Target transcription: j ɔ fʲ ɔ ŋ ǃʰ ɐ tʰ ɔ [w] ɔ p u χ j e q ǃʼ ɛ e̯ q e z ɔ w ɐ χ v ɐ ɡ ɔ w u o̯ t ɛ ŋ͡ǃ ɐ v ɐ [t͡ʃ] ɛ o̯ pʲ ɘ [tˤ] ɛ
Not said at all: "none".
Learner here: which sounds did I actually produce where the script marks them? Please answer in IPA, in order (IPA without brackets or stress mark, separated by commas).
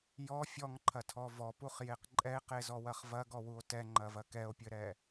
v, k, ɾ